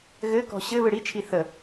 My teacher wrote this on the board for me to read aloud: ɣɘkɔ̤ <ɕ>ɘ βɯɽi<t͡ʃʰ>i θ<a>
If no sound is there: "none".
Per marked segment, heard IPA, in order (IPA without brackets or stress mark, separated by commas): ɕ, t͡ʃʰ, ə